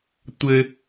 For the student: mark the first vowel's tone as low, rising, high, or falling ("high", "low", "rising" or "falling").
high